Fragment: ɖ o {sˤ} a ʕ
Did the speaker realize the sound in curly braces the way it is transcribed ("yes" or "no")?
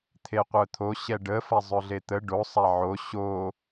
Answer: yes